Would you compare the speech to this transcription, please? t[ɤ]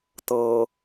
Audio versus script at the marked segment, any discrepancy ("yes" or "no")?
no